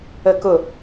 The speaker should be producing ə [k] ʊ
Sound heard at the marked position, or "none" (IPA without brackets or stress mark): k